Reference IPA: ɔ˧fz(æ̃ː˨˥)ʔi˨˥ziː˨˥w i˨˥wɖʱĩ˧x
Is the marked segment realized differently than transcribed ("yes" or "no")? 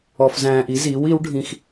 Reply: yes